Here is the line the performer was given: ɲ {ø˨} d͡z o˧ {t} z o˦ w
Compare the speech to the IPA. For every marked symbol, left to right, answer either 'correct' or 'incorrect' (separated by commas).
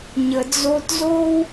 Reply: incorrect, correct